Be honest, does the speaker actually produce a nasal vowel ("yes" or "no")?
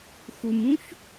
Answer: yes